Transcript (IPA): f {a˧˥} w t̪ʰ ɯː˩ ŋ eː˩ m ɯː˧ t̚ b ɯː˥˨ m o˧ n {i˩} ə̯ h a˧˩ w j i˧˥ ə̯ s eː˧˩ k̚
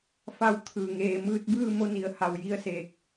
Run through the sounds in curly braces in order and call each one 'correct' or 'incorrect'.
incorrect: a˧, correct

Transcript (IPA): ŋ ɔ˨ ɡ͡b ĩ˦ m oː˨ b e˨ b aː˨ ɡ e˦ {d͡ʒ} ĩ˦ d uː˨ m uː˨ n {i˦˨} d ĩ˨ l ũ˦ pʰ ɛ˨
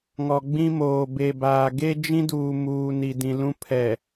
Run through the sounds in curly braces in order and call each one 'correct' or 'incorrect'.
correct, incorrect: i˨

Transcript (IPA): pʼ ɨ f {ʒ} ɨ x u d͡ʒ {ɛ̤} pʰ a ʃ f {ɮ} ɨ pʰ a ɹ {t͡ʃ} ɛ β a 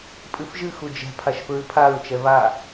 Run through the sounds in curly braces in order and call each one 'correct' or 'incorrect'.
correct, correct, incorrect: ɹ, correct

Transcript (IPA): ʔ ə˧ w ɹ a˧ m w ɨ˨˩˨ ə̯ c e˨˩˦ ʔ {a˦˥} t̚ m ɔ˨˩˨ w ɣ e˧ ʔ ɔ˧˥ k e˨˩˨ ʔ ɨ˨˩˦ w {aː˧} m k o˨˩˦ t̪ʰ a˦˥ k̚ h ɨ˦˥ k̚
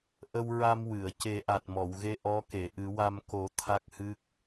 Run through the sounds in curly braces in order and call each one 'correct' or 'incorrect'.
incorrect: a˨˩, incorrect: a˧

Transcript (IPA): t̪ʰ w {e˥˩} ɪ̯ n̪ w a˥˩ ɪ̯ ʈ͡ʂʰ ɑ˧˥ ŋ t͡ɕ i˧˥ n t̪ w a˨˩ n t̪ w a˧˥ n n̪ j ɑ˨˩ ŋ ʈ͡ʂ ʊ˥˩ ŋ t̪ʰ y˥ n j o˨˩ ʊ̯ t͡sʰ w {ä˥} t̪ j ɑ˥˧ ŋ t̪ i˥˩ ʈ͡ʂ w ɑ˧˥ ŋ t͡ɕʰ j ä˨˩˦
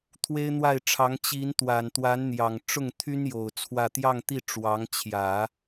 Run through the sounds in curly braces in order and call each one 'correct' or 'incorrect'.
incorrect: e˥, incorrect: ä˥˧

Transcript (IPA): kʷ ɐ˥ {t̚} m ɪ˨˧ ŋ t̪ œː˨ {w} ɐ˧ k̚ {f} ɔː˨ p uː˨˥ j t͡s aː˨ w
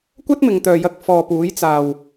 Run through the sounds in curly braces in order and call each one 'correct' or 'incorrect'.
correct, incorrect: j, correct

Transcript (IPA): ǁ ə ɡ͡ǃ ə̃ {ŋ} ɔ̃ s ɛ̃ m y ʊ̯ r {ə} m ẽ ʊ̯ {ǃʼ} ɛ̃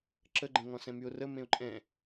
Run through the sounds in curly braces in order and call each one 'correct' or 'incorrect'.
correct, correct, correct

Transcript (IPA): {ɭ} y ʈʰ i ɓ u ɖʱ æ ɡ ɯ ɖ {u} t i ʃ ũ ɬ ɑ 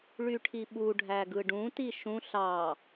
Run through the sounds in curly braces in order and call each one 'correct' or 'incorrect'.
correct, incorrect: ũ

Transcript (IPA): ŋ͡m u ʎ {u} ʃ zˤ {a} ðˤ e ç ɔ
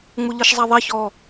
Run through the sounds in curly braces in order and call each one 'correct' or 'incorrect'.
incorrect: ɯ, correct

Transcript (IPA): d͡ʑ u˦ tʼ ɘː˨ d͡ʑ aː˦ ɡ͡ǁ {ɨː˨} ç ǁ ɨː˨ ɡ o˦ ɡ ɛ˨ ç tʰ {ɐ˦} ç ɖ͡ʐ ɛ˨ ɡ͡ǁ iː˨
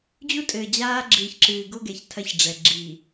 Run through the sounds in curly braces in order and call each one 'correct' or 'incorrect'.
correct, correct

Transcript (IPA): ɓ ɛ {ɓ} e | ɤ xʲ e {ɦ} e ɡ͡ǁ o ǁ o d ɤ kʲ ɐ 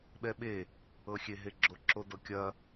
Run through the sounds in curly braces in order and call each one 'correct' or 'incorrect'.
correct, correct

